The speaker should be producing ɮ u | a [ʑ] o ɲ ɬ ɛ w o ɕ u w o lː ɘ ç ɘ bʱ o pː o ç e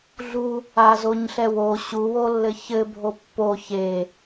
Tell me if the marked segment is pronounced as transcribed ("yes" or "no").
no